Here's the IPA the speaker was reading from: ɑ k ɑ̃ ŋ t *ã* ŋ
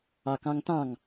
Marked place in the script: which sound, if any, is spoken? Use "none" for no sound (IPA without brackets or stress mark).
ɑ̃